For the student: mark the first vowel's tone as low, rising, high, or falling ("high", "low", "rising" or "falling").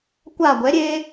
falling